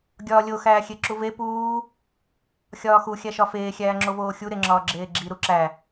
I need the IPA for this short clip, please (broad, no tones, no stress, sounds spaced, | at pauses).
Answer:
ɡʲ ɒː lʲ o x æː xʲ e ǁ u v e p uː | xʲ ɒː x u xʲ æ ʃ ɒ f eː xʲ æː ŋ͡ǁ o v oː xʲ u ɾ e ŋ͡ǁ ɒː ɡ͡ǁ eː ɡ͡ǁ i ɾ u ǁ æ